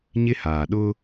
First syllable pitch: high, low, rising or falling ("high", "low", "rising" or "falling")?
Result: high